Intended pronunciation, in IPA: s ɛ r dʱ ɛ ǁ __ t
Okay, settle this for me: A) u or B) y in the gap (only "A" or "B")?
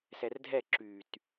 B